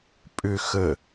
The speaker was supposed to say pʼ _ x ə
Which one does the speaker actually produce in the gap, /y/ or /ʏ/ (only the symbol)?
ʏ